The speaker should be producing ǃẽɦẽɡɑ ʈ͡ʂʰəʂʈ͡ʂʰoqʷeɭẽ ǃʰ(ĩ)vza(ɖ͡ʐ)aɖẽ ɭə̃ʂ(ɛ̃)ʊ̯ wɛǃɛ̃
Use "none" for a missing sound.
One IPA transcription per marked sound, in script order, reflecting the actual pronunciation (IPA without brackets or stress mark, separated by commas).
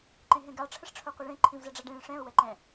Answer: ĩ, ɖ͡ʐ, ɛ̃